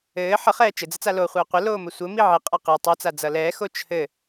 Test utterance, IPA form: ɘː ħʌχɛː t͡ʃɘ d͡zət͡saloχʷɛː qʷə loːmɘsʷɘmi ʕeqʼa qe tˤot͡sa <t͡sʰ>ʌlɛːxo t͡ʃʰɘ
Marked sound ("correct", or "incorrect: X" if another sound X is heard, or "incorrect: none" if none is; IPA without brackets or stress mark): incorrect: d͡z